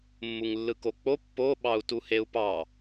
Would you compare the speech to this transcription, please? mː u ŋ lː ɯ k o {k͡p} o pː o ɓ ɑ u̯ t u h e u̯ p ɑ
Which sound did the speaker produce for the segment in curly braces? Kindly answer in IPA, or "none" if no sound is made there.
k͡p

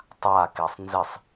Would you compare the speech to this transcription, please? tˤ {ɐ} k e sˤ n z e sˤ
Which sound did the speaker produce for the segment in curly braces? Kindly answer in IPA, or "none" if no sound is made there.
a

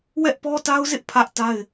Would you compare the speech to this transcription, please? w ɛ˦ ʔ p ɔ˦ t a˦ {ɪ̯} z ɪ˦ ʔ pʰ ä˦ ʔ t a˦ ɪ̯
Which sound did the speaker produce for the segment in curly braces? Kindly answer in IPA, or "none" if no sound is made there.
ʊ̯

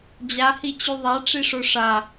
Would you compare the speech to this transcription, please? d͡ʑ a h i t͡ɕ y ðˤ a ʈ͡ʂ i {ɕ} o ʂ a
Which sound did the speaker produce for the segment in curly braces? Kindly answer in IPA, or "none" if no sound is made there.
ʂ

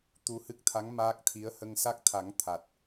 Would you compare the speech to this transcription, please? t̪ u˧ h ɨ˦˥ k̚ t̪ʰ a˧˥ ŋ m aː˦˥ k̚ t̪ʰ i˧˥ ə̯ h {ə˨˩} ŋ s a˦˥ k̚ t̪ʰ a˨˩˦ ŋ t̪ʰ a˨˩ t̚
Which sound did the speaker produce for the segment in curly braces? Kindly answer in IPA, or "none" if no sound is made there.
ə˧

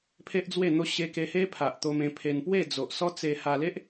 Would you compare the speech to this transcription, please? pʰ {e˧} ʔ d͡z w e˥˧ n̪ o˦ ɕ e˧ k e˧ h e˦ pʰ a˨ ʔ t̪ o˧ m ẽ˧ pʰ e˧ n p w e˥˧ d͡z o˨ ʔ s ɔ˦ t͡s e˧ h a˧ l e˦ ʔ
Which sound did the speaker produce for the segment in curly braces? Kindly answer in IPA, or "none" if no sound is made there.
e˦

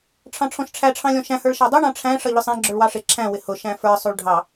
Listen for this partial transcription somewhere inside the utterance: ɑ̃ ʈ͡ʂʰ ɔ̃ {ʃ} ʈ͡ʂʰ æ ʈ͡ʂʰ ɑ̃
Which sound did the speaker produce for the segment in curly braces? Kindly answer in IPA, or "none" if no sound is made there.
ʃ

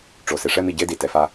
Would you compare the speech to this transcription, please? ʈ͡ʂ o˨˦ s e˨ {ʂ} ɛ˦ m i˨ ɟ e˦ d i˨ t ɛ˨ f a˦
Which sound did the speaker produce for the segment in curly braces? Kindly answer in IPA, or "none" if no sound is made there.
ʂ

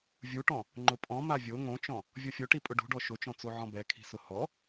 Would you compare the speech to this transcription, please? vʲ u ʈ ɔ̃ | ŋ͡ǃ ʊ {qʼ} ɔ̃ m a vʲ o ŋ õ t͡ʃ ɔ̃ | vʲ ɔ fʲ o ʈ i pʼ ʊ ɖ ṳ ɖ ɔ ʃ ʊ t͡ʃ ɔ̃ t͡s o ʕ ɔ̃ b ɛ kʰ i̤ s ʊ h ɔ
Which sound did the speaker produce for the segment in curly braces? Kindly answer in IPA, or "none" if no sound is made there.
pʼ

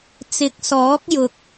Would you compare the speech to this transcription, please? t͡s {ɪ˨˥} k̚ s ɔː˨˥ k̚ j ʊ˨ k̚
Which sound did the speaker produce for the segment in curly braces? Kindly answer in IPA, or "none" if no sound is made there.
ɪ˨˥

